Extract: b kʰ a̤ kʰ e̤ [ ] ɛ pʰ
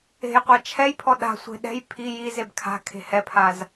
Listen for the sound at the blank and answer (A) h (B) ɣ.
A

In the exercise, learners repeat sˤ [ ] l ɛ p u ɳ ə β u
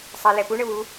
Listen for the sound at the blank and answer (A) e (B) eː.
A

